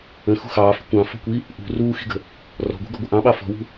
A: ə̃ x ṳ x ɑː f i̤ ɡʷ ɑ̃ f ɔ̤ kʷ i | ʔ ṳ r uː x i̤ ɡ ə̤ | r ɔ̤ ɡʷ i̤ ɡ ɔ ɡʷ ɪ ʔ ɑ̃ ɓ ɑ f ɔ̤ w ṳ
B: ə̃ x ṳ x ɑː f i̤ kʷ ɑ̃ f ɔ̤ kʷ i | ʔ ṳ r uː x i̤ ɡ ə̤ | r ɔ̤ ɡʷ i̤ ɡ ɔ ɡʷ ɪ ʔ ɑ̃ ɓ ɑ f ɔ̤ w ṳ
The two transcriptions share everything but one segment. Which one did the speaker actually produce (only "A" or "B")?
B